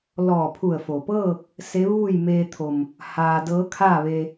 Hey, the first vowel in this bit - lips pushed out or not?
yes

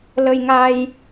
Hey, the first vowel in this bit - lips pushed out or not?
no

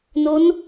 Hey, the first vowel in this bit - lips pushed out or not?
yes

